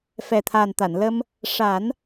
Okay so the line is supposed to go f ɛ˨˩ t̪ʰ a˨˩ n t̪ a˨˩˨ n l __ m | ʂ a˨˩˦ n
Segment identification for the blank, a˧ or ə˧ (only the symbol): ə˧